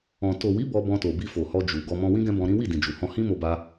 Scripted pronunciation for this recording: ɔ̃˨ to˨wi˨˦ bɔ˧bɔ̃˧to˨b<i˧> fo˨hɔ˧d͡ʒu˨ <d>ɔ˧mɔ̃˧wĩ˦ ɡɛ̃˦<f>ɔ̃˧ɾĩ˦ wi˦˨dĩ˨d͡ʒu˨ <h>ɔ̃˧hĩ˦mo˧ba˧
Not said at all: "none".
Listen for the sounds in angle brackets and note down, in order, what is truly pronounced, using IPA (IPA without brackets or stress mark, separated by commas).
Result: i˧, ɡ, b, h